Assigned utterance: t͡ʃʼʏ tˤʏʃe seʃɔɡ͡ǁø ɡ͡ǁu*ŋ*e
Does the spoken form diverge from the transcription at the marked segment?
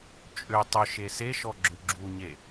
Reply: yes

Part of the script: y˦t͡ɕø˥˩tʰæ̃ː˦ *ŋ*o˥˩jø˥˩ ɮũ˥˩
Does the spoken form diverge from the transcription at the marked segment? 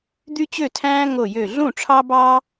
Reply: no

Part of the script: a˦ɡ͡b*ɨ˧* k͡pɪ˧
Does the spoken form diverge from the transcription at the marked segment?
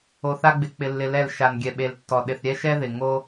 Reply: yes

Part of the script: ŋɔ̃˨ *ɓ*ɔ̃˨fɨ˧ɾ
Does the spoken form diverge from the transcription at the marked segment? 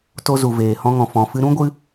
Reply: yes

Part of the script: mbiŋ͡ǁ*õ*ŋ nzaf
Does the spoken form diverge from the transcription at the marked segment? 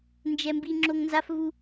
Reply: yes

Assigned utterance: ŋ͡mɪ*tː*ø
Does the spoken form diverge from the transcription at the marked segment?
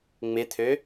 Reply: yes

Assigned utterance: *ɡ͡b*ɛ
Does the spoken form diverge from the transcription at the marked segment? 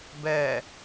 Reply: yes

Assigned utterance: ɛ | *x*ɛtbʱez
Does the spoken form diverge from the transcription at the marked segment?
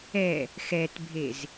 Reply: no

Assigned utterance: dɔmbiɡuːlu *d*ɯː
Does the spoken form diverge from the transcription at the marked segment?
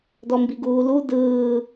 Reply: no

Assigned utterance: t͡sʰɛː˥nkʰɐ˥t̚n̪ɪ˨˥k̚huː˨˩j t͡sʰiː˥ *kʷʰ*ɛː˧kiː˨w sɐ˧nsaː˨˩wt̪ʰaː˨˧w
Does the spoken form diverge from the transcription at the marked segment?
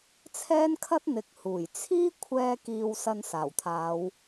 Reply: no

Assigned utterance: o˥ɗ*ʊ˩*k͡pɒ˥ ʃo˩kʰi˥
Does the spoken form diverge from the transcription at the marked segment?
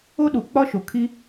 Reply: yes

